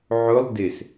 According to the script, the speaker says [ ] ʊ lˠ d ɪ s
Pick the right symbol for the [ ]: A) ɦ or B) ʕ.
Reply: B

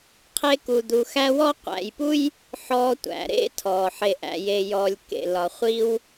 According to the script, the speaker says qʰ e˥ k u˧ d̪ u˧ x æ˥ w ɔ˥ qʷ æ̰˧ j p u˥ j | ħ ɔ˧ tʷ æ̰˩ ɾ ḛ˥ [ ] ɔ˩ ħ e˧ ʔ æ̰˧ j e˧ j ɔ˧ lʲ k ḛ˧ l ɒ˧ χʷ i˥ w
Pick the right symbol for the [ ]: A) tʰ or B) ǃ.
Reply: A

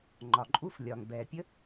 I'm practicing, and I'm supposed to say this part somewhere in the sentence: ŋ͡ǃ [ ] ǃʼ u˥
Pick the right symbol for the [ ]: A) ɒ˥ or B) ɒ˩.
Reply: B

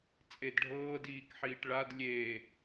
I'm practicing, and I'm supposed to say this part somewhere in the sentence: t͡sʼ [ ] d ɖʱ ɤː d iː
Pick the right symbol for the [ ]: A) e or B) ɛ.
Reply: A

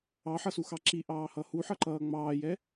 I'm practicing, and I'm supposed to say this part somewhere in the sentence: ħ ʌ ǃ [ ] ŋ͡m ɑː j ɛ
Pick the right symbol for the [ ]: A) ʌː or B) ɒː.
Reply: A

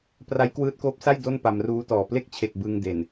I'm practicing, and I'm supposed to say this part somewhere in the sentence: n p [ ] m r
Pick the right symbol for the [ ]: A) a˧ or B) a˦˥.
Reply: A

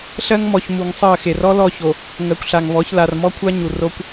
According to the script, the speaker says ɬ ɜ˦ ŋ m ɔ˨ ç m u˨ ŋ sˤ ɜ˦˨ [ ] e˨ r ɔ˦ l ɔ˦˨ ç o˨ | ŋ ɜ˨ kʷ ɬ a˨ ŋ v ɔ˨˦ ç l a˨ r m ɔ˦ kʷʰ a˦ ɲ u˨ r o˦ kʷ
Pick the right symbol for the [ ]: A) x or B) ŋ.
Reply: A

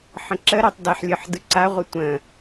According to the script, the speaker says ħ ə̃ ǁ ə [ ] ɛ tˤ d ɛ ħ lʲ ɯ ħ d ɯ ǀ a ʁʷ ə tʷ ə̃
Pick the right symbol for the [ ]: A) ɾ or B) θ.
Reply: A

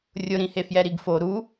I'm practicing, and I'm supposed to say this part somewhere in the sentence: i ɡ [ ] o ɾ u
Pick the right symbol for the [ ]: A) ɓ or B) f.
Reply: B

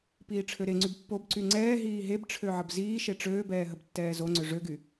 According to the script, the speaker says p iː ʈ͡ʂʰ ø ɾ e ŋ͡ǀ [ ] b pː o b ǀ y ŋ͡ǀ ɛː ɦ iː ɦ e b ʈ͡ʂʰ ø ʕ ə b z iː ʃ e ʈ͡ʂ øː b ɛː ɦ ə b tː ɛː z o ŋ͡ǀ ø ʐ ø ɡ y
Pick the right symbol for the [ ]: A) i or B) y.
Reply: B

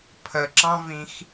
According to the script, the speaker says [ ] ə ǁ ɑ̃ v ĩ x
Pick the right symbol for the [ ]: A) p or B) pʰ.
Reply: B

